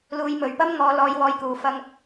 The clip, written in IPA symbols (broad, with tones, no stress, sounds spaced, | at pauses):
l uː˨ j m ɵ˨ ɥ p ɐ˥ m ŋ ɔː˨˧ l ɔː˨˧ j w ɔː˨˧ j k uː˨ f ɐ˥ ŋ